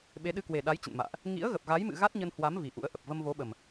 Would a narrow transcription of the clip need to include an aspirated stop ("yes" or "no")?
no